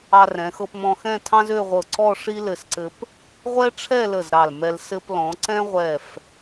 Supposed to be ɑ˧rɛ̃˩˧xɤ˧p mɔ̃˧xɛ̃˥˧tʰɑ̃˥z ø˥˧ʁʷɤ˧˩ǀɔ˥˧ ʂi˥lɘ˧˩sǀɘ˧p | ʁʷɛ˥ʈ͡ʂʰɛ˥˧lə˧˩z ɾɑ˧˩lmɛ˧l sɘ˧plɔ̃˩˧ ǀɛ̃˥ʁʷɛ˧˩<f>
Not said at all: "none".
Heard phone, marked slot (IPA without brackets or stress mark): f